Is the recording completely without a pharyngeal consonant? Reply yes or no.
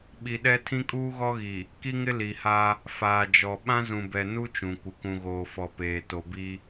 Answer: yes